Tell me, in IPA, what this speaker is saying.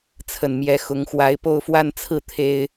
t͡sʰ ə˨˩ n m j ɛ˧˥ x ʊ˧˥ ŋ x w a˧˥ ɪ̯ p o˥˧ ʊ̯ f w a˥˧ n t͡sʰ ɹ̩˥˩ t̪ʰ e˥ ɪ̯

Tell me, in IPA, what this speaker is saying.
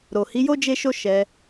ɾ o˨ h i˨˦ j o˦ d͡ʒ e˦ ʃ o˦ ʃ ɛ˧

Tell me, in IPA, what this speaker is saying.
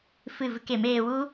f ɨ˦˨ v ɨ˧ k e˨˦ m eː˧ w u˦

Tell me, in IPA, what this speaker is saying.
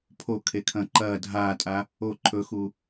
pʰ o kʰ e kʰ ɐ̃ ǃ ɐː dʱ aː tʼ a | o ǃʰ ɵ x u

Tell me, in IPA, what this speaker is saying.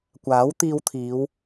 kʷ aː˨˥ w t̪ iː˧ w t̪ʰ iː˨˧ w

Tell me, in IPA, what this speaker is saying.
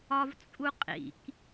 ɒ v t͡sʼ u qʼ ḭ k

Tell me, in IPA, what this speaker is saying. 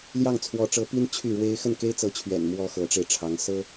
l j ɑ˥˩ ŋ t͡sʰ w ɔ˧˥ ʈ͡ʂ ɤ˧˥ p i˥ n t͡ɕʰ y˥˩ ɻ w e˥ ɪ̯ x ə˥˩ n k e˥ ɪ̯ t͡s ɤ˧˥ t͡ɕʰ ɥ ɛ̰˨˩ n m w ɔ˥ x ɤ˧˥ ʈ͡ʂ e˧ ɪ̯ ʈ͡ʂʰ ɑ˧˥ ŋ s ɤ˥

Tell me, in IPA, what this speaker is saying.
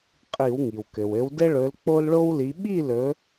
qʼ i˧˩˧ w ŋ i˩ w k ɘ˩ w ɘ˨˦ w d ɘ˦ ɭ ɵ˨˦ l k͡p o˦ l ɭ o˦ w l i˨˦ ɓ i˥˩ l ɵ˨˦

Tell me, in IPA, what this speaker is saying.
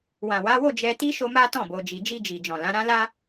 w ã˨ w a˨˦ w o˦˨ d͡ʒ ɛ˧ t i˦ ʃ o˦ m a˦ t ɔ̃˦˨ b o˨ d͡ʒ i˨ d͡ʒ i˧ d͡ʒ i˨ d͡ʒ ɔ̃˨ l ã˨˦ ɾ ã˦ l a˦

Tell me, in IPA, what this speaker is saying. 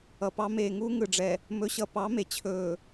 ʌ˨ p ɑ˨˦ m eː˨ ŋ uː˦ ŋ ɯ˨ ɖ͡ʐ ɛ˨ | m ɵ˦ ɕ ʌ˦ p ɑ˨˦ m e˨ t͡ɕʰ ɵː˨

